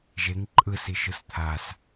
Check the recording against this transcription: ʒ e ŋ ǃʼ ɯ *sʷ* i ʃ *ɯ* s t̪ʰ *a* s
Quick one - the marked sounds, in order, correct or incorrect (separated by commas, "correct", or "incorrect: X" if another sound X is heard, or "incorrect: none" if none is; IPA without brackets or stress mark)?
incorrect: s, correct, correct